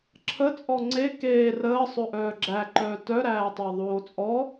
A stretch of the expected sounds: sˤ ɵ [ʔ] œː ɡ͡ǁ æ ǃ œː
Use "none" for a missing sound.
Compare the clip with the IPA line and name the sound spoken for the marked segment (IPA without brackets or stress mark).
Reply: ʔ